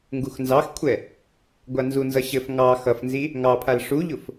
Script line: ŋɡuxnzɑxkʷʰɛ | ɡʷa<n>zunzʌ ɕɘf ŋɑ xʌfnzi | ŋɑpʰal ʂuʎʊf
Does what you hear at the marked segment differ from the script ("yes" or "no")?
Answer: no